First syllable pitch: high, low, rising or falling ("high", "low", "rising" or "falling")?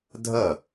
falling